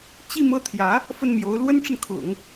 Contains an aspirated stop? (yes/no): yes